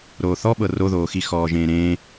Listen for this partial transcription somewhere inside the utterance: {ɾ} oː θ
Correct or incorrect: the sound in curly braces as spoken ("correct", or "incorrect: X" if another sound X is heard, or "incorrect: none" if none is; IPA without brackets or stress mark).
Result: correct